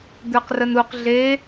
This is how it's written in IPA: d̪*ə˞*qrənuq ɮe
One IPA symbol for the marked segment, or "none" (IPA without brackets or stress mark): ə˞